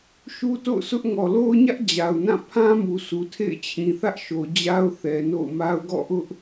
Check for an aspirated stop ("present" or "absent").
present